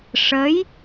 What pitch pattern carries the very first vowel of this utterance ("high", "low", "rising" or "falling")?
rising